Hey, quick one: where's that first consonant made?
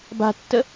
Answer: lips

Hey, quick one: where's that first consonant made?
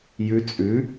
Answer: palate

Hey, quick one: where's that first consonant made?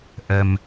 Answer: throat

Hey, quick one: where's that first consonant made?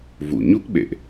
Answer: lips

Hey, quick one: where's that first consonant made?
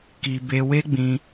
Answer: velum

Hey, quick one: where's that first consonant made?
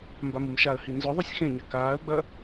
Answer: lips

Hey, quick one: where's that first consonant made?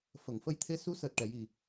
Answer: lips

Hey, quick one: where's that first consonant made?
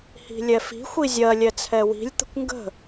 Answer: throat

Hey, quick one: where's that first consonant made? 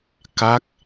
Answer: velum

